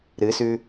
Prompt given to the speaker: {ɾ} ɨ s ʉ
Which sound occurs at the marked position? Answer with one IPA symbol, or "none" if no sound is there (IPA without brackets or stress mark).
ɾ